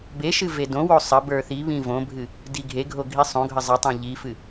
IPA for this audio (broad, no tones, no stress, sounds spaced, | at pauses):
b e ʃ ɨ v e d õ w o sˤ ə b ə˞ θ i β ĩ v õ bʱ ɨ | d i ɡʱ e ɡʱ o ɡʱ i sˤ õ ɡʱ ə zˤ ə tˤ ẽ ʎ i f ɨ